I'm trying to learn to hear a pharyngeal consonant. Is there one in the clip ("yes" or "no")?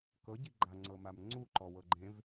no